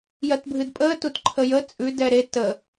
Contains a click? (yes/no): yes